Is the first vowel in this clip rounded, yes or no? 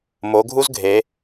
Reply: yes